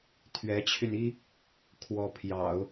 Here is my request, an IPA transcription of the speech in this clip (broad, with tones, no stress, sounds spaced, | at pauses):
t̪ʰ ɥ ɛ˧˥ t͡ɕʰ y˧ n i˥ | kʰ w ɔ˧˥ pʰ j ɑ̰˨˩˦ ʊ̯